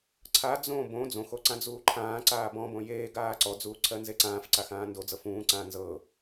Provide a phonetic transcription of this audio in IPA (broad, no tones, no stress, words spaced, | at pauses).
ǀʰa d͡zõ bõ d͡zõxo ǀãd͡zuːǃʰãːǀaːb ɔ̃bõ jeː ɡaːǀɔd͡zuː ǀʰɜnzeǀãːfǀax ãːndod͡zɤ fũːǀãː nzɤ